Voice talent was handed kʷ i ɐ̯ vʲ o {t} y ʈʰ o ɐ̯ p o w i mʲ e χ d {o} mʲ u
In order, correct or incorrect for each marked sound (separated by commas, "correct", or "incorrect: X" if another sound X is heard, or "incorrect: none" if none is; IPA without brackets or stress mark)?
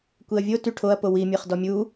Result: correct, incorrect: ɔ